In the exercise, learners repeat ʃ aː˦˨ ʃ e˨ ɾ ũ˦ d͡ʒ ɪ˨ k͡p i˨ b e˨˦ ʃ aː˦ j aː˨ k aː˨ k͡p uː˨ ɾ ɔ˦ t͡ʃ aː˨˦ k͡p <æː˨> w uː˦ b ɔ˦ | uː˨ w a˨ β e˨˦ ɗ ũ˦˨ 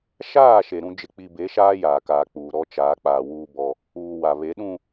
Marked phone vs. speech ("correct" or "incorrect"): incorrect